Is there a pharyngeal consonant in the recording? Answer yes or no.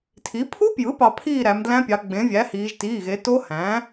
no